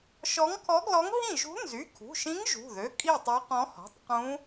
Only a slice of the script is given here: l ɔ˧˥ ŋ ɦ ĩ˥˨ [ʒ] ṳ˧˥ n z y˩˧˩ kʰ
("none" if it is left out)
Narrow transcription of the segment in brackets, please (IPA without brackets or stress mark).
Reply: ʒ